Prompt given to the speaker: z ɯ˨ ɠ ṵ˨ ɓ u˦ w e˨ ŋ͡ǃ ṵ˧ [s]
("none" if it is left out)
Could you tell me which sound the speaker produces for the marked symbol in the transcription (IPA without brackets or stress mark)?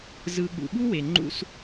s